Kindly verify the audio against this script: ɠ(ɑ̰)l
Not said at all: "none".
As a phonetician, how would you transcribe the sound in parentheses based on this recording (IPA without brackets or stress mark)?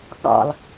ɑ̰